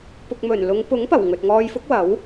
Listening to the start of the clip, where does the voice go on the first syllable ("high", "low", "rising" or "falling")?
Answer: low